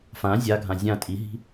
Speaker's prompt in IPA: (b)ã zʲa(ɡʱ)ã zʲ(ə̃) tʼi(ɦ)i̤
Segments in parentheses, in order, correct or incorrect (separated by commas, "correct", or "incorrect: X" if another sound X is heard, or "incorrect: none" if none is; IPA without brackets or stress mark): incorrect: f, correct, incorrect: ã, correct